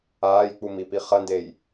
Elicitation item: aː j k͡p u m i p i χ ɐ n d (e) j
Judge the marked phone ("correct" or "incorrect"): correct